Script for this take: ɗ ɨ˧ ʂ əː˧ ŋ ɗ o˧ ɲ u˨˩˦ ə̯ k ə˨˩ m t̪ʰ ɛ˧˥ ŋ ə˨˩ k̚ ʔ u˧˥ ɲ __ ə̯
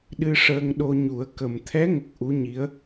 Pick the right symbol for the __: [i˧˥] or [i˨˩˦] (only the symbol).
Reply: i˧˥